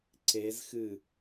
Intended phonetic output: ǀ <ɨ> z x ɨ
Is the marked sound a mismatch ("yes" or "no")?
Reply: yes